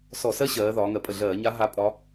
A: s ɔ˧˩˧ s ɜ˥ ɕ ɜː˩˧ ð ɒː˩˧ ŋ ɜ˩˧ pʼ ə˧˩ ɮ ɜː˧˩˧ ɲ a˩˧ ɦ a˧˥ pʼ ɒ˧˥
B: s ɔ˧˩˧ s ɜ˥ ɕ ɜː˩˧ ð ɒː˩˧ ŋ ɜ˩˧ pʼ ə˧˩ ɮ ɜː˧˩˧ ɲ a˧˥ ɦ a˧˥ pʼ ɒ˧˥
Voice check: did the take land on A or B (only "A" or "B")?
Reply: B